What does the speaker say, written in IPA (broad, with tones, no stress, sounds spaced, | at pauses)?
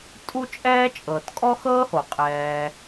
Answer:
tʼ u˦ t͡ʃʼ ɛː˦ t͡ʃʼ ɤː˨ t kʼ ɔ˦ x ɤː˦ h o˨ qʼ ɛː˧